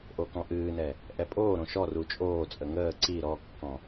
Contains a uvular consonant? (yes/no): no